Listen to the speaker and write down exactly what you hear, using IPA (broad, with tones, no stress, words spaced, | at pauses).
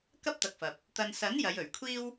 kɐ˥p̚t̪ɐ˨k̚fɐ˨p̚ | t̪ɐ˧n sɐ˨˥n jɐ˨˧jɵ˨˩ɥ kʷʰiː˥w